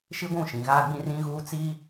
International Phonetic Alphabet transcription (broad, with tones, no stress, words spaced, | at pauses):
ʃi˦ɡʷũ˦˨ ʃĩ˨ɣaː˦ɡ͡bĩ˦ rĩ˦ɣuː˦ t͡si˦